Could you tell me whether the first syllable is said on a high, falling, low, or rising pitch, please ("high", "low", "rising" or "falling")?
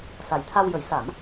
low